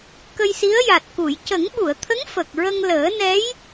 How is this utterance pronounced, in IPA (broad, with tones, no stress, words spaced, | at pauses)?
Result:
kə˧jsi˧˥ə̯ja˨˩t̚ku˨˩˨j cə˨˩˦ŋɓu˨˩˨ə̯t̪ʰə˧˥ŋ fə˨˩k̚ ɹə˧ŋləː˨˩˦ nɛ˧˥j